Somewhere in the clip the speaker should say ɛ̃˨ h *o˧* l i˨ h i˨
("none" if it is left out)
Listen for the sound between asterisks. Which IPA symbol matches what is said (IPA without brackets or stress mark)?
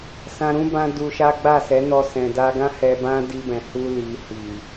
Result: u˧